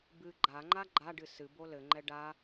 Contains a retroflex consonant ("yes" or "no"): yes